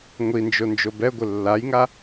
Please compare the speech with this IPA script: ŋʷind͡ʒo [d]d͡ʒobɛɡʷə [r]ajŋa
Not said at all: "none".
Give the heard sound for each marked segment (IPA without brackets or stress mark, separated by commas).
n, lː